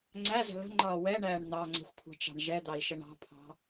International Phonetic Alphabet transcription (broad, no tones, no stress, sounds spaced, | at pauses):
ŋ͡ǀ æ z ə̤ l ə̤ ŋ͡ǃ ɒː w ɛ ɳ æː ɳ n̪ ɑ ŋ͡ǀ ɛ̤ xʷ kʷʰ ɛ̤ t͡ʃ ɑ̤ ɳ ʒ ɛ d̪ ɑ i̯ ʃ ə ɳ ɑ̤ pʰ ɑ̤